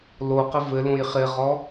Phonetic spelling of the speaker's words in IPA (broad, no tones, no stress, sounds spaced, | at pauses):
l o q ɪ v ɘ l õ j χ ɪ ʁ ɔ